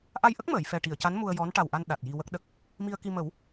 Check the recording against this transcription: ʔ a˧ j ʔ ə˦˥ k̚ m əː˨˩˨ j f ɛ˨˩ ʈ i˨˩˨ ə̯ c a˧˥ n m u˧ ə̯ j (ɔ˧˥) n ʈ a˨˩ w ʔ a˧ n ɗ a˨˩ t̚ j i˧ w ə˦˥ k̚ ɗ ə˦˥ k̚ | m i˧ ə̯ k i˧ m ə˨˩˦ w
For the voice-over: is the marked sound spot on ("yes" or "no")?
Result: yes